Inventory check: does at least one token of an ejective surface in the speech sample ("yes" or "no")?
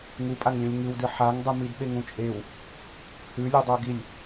yes